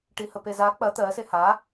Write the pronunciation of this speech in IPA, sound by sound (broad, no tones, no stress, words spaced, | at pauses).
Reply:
ʈihəpeza k͡pɐ t̪ɜ seha